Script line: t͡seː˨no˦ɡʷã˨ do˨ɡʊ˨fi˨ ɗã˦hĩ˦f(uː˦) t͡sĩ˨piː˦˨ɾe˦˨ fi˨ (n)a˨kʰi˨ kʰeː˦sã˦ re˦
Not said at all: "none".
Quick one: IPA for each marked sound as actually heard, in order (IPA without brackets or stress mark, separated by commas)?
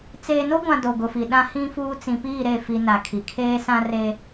uː˦, n